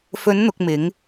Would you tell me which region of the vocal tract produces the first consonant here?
lips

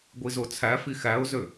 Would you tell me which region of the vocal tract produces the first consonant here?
velum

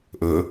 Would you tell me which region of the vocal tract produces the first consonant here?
throat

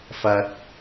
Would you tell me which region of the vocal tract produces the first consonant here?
lips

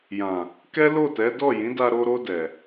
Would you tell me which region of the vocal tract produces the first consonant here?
palate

